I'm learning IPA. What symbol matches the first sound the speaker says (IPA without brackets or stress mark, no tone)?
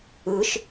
ɯ